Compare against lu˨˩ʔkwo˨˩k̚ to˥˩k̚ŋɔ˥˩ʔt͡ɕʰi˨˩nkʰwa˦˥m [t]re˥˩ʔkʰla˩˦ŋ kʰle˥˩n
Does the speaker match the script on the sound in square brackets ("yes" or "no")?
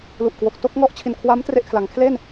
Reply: yes